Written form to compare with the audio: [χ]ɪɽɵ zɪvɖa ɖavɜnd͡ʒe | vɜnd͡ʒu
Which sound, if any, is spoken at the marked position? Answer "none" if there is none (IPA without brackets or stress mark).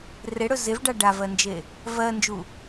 r